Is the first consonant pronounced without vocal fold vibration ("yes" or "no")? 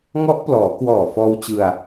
no